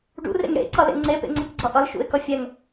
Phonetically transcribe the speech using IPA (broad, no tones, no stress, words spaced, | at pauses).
ɖṵrḛŋ ɽḛǀʌlḛ ŋ͡ǀepḛŋ͡ǀekɡ͡ǀʌ ʔʌlʃṵɪ̯kʌ fʲɛŋ